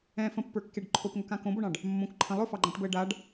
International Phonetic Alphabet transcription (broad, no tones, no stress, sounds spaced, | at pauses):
ɛ̃ f ə̃ pː ə˞ kː e ɖ ǃʰ o p ŋ ɵ k ã k õ b o ɳ ɑ̃ ɖ | mː õ k ǃʰ ə̃ lˠ ɵ f ɑ ɡ͡ǃ ã ʈ b əː ɖ a ɖ